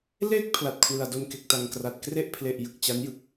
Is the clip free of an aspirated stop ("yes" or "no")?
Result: no